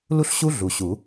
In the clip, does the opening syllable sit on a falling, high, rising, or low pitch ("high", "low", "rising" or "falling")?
high